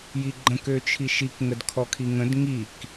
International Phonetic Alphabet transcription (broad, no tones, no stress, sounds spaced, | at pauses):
j i ɡ͡ǃ ə̃ k ø t͡ʃʰ i ʃ i k ŋ ə d kʰ ɔ kʰ i ŋ ə̃ d ŋ i k